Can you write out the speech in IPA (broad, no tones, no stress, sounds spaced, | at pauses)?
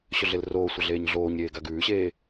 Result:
ɕ ɵ ɮ e l r oː sʷ ɐ ɮ eː ɲ ɮ oː ɲ ɾʲ eː ɡ a ɡ ʉː ɕ eː